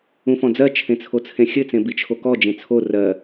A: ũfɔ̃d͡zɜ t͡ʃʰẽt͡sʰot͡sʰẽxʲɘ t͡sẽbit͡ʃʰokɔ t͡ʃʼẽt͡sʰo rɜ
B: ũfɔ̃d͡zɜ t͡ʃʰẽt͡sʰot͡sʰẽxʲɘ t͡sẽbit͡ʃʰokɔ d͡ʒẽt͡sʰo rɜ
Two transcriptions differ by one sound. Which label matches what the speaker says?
B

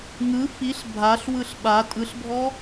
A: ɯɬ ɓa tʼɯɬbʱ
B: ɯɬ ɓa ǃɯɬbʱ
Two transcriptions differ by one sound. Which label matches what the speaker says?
A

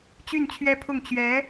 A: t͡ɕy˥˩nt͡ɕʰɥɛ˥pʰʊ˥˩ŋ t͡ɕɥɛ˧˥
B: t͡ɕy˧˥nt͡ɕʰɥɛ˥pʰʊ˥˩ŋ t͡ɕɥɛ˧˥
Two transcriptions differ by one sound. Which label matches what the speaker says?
A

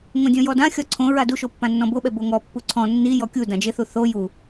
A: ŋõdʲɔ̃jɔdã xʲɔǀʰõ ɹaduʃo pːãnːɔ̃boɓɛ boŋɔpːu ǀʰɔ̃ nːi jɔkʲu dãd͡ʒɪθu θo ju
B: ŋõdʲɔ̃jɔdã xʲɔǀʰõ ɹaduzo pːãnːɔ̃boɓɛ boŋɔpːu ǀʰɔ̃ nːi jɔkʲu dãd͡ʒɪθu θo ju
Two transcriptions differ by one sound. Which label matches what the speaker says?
A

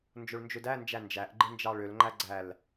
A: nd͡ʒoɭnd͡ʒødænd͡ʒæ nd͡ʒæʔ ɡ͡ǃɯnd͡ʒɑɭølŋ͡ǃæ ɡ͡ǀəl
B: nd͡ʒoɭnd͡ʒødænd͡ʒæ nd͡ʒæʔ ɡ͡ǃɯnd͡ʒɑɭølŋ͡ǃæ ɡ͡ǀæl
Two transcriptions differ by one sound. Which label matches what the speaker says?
B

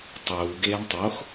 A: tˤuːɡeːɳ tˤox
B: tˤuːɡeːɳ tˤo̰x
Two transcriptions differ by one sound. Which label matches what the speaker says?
A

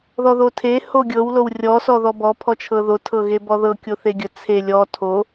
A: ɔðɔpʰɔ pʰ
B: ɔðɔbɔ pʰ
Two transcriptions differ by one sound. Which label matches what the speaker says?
B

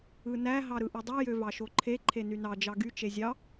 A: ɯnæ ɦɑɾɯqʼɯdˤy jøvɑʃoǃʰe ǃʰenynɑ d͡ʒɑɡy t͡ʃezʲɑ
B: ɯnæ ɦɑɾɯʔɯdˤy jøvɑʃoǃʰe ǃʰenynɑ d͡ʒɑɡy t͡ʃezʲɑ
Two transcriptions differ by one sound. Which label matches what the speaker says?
B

